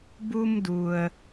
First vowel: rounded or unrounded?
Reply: rounded